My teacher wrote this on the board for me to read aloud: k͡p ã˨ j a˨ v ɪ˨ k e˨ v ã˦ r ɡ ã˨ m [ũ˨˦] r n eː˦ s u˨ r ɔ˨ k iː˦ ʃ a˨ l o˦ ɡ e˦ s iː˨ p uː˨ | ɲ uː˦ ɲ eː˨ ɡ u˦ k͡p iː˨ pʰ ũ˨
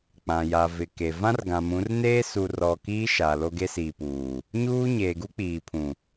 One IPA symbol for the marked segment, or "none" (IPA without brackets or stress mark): ũ˨˦